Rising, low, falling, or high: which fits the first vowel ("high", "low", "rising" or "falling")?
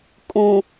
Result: low